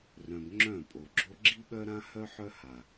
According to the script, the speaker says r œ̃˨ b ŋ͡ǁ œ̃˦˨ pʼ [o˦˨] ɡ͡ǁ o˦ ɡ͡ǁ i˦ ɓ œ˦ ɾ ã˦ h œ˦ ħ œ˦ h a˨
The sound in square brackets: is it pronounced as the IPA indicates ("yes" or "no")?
no